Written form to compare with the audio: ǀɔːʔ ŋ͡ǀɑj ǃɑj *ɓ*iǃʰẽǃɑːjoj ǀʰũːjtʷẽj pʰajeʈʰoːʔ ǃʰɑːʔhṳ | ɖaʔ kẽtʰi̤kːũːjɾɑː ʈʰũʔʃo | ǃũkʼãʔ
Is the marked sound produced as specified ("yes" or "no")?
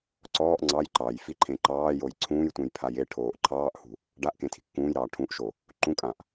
no